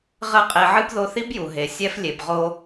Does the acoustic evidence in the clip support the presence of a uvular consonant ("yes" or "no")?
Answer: yes